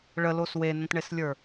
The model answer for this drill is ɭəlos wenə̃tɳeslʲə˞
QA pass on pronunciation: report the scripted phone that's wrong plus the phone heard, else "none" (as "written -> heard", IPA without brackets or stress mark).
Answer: none